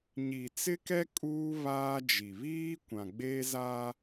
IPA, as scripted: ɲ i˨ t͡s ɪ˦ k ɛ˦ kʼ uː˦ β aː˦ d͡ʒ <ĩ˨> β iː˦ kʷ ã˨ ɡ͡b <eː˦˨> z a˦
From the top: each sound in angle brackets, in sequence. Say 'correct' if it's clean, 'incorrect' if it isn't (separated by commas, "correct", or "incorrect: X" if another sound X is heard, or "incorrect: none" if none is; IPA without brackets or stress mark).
incorrect: i˨, incorrect: eː˦